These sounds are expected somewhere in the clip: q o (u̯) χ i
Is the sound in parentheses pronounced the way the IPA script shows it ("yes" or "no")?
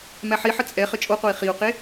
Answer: no